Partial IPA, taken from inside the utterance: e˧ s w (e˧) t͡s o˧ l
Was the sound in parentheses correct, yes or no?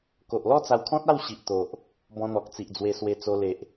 yes